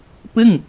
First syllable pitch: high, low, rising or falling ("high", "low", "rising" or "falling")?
falling